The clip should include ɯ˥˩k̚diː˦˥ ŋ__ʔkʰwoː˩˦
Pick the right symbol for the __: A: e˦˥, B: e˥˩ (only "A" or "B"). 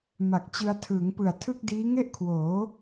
B